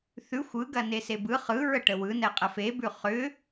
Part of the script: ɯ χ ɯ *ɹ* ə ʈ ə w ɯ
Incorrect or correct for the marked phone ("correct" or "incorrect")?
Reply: correct